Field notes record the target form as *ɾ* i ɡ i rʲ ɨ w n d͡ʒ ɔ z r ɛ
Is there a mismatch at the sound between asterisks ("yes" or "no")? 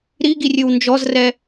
no